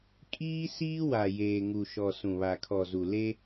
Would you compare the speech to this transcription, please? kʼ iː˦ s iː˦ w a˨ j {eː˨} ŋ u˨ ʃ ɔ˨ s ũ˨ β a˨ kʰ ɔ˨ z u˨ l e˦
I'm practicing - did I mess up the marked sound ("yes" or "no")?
no